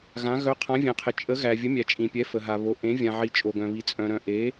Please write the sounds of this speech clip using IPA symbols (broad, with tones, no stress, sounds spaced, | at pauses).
ɣ ã˧˥ ɣ œ˧˥ qʰ ã˧˥ vʲ ɛ̃˧ qʰ ɪ˧ t͡ʃʼ ə˧˥ ɣ æ˧ vʲ ə˧˥ mʲ æ˧ t͡ʃʼ ĩ˧ pʲ ɛ˧˥ f ə˧ ɦ a˧ β o˧˥ ʔ ẽ˧˥ vʲ ã˧ ʕ i˧ t͡ʃʼ o˧ ɡ œ̃˧ β i˧ t͡sʼ œ̃˧ ɾ œ̃˧ ʔ e˧˥